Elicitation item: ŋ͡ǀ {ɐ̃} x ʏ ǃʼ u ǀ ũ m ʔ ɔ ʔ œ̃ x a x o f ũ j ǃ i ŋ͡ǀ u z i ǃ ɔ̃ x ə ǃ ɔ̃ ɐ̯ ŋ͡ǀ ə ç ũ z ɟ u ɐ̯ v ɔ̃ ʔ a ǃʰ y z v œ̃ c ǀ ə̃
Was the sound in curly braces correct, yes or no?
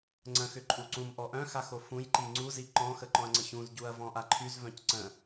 no